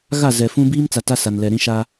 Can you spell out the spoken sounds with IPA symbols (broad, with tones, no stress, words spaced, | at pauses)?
ɣa˦˨ zɛ˨fũ˦ biː˦mt͡sa˨ ta˦sa˨nlɛ˨ɾĩ˦ ʃa˦